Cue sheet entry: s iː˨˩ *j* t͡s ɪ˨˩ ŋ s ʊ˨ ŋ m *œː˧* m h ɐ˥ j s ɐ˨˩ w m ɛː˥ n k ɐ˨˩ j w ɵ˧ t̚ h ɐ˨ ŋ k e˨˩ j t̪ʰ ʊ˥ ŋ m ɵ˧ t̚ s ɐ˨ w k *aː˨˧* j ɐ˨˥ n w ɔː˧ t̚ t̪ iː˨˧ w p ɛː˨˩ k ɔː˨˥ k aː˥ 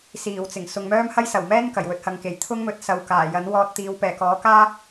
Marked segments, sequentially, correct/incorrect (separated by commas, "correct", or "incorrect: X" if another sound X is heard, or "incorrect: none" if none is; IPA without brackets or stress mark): incorrect: w, incorrect: œː˥, incorrect: aː˨˩